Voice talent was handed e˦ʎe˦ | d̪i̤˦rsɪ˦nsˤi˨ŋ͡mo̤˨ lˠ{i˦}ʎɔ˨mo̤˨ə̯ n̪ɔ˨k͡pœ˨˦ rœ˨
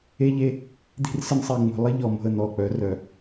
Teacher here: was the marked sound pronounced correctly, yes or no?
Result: no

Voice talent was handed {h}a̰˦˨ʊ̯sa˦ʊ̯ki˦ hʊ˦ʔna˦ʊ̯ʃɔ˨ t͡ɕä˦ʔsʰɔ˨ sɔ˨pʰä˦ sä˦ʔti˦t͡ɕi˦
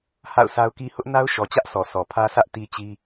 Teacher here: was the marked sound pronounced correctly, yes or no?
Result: yes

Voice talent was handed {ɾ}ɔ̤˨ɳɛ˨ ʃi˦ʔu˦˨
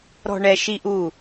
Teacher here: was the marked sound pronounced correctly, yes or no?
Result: yes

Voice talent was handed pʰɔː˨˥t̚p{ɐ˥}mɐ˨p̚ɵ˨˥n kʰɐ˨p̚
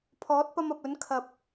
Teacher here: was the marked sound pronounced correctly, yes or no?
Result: no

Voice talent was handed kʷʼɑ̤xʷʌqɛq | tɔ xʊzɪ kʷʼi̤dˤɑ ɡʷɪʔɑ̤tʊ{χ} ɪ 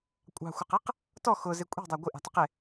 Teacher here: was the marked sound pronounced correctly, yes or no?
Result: no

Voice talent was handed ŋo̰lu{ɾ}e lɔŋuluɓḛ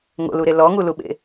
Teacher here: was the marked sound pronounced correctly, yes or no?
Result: yes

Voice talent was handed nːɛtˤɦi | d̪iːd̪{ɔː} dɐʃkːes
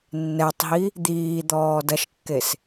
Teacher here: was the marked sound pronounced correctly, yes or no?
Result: yes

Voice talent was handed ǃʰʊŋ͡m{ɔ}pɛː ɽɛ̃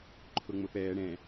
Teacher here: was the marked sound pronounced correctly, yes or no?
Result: no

